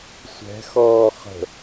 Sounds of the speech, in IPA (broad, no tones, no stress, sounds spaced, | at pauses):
sʷ ɛ̤ x ɔː χ ə̤